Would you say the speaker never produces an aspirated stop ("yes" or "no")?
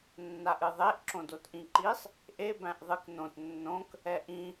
yes